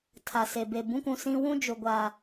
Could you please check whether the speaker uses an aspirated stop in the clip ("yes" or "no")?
yes